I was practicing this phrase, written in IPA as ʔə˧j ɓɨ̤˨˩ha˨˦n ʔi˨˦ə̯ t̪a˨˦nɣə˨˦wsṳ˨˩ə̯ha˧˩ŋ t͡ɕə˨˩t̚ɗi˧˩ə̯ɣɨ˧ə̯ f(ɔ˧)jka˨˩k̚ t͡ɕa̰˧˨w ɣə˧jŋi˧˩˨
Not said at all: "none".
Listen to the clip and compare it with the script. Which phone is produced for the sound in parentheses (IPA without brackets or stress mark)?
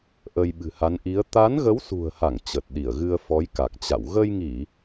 ɔ˨˦